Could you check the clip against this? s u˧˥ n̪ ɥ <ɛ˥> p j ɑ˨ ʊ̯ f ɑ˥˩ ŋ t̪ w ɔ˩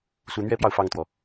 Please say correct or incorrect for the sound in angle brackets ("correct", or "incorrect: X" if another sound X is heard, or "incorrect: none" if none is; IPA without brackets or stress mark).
correct